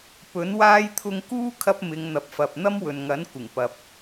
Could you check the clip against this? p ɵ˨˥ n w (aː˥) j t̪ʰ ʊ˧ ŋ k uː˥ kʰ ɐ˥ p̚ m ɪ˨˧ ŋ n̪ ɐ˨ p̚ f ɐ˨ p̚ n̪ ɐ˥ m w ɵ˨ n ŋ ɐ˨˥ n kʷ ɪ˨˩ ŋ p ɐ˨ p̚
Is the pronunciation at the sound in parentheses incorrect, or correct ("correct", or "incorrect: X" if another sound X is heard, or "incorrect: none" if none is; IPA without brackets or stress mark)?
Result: correct